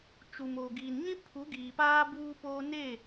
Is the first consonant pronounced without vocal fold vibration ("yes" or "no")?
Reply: yes